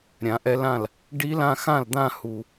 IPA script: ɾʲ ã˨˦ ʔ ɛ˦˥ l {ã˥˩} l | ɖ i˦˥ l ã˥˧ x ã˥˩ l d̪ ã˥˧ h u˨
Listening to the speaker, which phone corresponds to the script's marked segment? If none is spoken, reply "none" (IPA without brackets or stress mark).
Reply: ã˥˩